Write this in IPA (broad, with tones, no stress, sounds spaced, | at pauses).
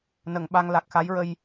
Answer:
n ə˨˩˨ ŋ ɓ a˧ ŋ l a˨˩ k̚ x a˧˥ j ɹ ə˧ j